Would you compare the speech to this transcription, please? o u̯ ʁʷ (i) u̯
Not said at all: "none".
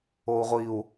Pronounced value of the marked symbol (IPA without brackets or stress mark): i